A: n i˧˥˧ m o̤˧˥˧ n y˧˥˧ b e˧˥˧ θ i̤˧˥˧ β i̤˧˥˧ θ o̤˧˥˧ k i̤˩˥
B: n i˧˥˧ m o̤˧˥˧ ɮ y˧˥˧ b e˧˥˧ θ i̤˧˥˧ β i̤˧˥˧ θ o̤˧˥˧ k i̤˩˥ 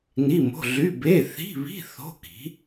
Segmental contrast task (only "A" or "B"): B